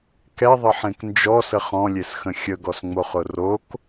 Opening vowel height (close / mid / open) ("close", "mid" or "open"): mid